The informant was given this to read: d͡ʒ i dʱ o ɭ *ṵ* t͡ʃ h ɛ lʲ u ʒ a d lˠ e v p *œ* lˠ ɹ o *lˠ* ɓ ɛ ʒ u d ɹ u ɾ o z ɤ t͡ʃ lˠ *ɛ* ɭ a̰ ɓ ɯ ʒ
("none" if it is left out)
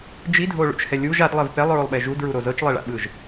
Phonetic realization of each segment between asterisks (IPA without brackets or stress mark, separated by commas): ṵ, ɛ, lˠ, e